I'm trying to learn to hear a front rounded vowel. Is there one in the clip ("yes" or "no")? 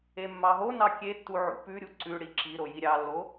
no